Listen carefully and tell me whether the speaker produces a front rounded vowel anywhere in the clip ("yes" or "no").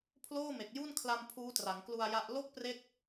no